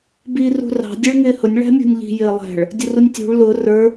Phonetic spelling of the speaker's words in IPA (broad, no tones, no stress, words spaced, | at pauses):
biːrṳrɑ̤ dʲɛɭŋɪːhʊnʲ ɭæ̤mʲṳnʲʎi̤ jɪːlˠæ̤ɭ | dʲʊrunʲtʲṳɭ lʊ rə˞